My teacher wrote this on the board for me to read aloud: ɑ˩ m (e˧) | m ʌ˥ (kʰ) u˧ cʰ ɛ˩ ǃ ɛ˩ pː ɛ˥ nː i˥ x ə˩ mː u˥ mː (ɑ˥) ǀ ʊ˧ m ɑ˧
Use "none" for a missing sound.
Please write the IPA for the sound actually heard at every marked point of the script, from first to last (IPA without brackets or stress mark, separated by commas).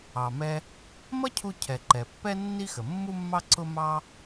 ɛ˧, cʰ, ɑ˥